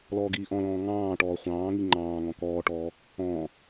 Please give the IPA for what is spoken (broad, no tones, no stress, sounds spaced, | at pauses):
l ɔː ɡ iː ʔ ɔ̃ l ɔ̃ː ŋ ɑ̃ː ʈ ɔː χʷ ɑ̃ː ŋ i ŋ͡ǃ ɑ̃ː ŋ ɔ̃ k ɔː ʈ ɔː | ɔ̃ː